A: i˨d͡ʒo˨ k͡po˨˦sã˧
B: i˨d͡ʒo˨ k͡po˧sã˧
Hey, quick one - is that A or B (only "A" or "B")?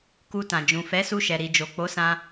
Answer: A